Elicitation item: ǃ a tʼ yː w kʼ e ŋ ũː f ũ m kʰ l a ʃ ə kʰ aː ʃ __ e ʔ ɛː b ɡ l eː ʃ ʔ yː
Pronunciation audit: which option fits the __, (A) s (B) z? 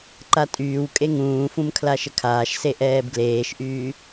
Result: A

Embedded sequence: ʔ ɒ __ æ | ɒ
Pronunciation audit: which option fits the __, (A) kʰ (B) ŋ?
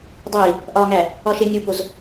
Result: B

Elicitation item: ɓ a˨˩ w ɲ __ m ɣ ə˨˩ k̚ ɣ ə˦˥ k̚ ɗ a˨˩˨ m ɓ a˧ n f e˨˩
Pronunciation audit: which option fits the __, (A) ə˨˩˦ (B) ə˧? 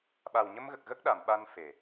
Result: B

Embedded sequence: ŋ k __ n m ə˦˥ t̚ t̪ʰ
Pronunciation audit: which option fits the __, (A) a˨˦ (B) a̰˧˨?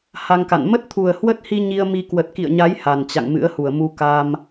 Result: B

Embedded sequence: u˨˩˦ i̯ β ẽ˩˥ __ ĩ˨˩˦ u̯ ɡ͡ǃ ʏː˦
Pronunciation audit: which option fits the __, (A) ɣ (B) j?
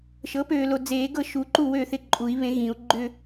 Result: A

